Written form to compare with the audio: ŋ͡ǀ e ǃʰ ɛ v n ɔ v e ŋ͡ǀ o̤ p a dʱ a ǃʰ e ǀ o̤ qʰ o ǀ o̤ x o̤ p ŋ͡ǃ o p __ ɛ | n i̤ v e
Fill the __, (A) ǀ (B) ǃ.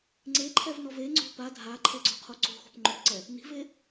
A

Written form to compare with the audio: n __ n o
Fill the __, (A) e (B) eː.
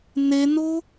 A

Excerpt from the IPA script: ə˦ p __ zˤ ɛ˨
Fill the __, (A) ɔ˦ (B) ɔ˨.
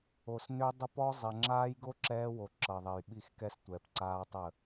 A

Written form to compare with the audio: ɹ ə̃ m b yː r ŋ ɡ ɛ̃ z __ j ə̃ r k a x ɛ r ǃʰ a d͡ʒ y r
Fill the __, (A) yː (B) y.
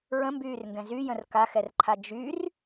B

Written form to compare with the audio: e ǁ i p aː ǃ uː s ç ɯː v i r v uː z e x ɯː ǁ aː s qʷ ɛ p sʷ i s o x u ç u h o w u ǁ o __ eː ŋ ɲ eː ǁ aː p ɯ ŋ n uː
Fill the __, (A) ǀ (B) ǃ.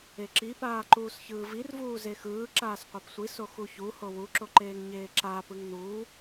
B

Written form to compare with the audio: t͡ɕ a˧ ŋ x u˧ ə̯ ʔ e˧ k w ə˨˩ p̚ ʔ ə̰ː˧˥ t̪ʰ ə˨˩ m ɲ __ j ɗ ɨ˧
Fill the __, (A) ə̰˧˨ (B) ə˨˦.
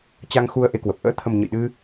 A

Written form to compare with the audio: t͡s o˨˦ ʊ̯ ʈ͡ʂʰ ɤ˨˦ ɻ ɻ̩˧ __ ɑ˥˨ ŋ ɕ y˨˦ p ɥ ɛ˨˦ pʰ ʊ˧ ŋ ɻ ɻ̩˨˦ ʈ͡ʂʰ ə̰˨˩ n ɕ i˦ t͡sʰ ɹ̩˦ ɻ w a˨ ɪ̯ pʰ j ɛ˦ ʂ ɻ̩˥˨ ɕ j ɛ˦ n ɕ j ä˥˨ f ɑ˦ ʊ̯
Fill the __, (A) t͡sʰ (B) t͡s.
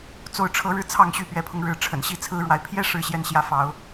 A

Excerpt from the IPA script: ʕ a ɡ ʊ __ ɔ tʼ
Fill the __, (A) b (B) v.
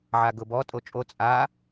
A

